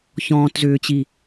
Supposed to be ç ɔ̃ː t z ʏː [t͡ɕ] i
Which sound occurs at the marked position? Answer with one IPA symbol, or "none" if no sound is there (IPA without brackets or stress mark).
t͡ɕ